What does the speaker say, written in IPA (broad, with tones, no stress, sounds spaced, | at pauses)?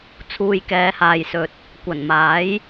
t͡sʰ uː˨ j k ɛː˨˧ h aː˨ j s ɵ˨ t̚ | kʷ ɐ˨˩ n m aː˨˥ j